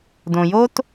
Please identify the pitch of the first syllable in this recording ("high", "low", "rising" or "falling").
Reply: low